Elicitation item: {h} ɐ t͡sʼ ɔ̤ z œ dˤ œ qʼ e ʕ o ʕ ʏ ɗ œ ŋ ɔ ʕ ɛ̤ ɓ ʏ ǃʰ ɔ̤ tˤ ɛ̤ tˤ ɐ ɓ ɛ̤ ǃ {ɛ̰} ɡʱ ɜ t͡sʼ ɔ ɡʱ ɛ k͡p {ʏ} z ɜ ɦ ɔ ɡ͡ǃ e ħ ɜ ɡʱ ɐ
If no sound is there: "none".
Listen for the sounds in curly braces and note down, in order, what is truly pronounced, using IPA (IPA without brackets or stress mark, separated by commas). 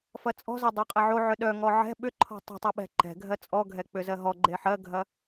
f, ɛ̤, ʏ